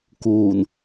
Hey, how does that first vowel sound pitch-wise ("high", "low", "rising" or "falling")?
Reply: low